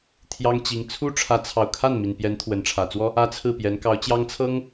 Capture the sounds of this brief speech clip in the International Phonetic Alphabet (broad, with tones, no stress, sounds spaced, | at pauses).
t̪ʰ j ɑ˥ ŋ t͡ɕ i˧˥ ŋ t͡sʰ u˥ ʈ͡ʂʰ ä˧˥ t͡sʰ ɑ˨˩ ʊ̯ kʰ a˥˩ n m i˨˩ n p j ɛ˧˥ n t̪ʰ w ə˧˥ n ʈ͡ʂʰ ä˨˩ t͡s w ɔ˥ | ä˥ t͡sʰ ɹ̩˥˩ p j ɛ˧˥ n k ɑ˧˥ ʊ̯ t͡ɕ j ɑ˥ ŋ t͡sʰ ɤ˥ ŋ